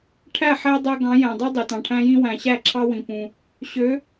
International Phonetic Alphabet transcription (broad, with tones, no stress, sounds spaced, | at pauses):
ʈʰ æ˥˩ ħ æ˦ dˤ æ˦ ɡ ɑ̃˨˥ j æ̃˨ dˤ u˦ dˤ e˨ t ɑ̃˨ ʈʰ æ̃˦ j ĩ˦ w æ̃˨ ɕ æ˥˩ ǁʰ ɑ˦ w ĩ˨ p ũ˨ | ɕ ø˨˥